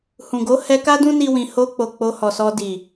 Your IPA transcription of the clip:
h ũ˨ ɡ o˨˦ h ɛ˧ k a˦ d ũ˦ n i˦ w ĩ˧ h o˧ k͡p o˨ k͡p o˧ h ɔ˨ s ɔ˧ d i˨

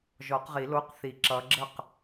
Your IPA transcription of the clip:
ʒ ɔ˨˩˦ q ʁ i˨˩˦ l o˧˥˧ q θ i˨˩˦ ǁ ʌ˨˦ ɡ͡ǁ ə˥˩ q

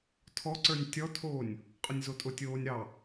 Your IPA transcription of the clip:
tʰ ɔ ǀ ə˞ nʲ tʲ ɔ tʰ oː nʲ | qʼ ʊ nʲ z o tʼ ʊ tʲ oː nʲ ɾ ɑ

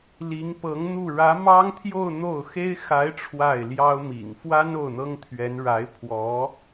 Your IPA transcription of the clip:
l i˧˥ ŋ p ɤ˧˥ ŋ n̪ u˥˩ ɻ ä˧˥ m ɑ˥ ŋ t̪ʰ j o˥˧ ʊ̯ n̪ o˥˩ ʊ̯ x e˥ ɪ̯ x a˧˥ ɪ̯ ʈ͡ʂʰ w a˥˩ ɪ̯ l j ɑ˥ ʊ̯ m ḭ˨˩ ŋ f w a˥ n o˥˩ ʊ̯ n̪ ɤ˥ ŋ t̪ʰ ɥ ɛ˧˥ n ɻ a˧˥ ɪ̯ pʰ w ɔ˧˥

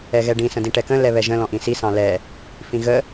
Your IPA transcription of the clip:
ɛ ɣ ɛ ɖ ĩ s ə̃ d ĩ ʈ ɛ k ə̃ l ɛ β ɛ ʒ ə̃ l ɔ̃ ʔ ĩ s i s ɑ̃ l ɛ | f ĩ ɣ ə

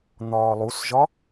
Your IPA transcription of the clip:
n̪ ɒː lˠ u s ʒ ɒ

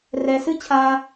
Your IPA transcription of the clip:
r ɛ˦ s ɨ˥ t͡ɕʰ a˦

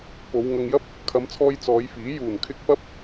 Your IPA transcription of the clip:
p o˨˧ w ŋ ɐ˧ ŋ j ɐ˥ p̚ | kʰ ɐ˨˧ m t͡sʰ ɔː˧ j t͡s ɔː˨˧ j f iː˨˥ j uː˨˩ n kʰ ɪ˧ k̚ p ɐ˥ p̚

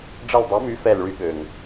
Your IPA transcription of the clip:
ɖ͡ʐ ɐ˦˨ l dˤ ɛ˨˥ m y˨˥ f ɛ˦˨ l ɭ y˦ ɠ ø˨˩ ŋ

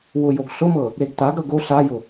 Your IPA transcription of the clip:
w ʊ j o ɡ ɬ ʊ m ɤ | ɾ e ɡ t a ɡ ɾ ɤ ɡ o ɬ a j ʊ

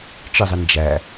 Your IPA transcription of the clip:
t͡ʃ ɨ zˤ i n d͡ʒ æ

